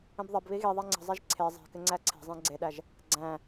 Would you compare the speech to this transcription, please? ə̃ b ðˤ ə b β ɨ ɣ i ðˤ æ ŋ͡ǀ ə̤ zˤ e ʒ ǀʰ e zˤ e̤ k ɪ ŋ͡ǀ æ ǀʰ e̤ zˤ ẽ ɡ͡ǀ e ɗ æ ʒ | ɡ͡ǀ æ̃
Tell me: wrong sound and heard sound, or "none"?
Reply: ɨ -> i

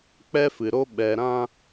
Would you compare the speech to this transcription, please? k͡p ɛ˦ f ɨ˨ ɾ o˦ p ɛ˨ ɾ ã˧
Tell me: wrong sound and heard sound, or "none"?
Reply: p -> ɓ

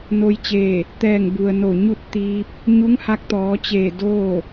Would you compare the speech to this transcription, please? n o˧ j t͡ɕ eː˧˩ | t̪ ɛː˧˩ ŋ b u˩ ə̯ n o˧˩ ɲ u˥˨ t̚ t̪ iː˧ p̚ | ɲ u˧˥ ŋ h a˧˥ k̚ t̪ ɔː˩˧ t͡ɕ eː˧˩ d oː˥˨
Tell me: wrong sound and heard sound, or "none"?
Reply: none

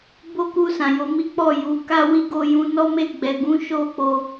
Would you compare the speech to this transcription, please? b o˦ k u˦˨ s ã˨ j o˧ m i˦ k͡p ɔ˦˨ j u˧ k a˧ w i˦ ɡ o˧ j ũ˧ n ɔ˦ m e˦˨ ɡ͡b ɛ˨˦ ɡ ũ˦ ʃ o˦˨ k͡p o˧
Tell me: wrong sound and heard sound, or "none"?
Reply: a˧ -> a˦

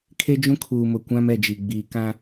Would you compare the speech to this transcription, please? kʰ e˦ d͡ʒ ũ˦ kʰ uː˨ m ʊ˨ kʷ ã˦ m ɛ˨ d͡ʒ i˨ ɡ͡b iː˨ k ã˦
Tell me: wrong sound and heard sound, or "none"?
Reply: none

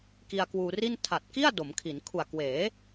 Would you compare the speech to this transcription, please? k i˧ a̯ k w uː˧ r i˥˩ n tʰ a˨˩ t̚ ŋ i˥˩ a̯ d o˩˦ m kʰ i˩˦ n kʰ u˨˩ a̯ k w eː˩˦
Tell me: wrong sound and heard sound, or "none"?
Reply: ŋ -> k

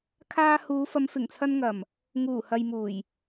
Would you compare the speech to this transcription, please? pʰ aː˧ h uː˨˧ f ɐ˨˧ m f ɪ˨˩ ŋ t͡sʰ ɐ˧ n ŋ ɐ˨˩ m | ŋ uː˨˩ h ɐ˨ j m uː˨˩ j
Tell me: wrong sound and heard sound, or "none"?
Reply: pʰ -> kʰ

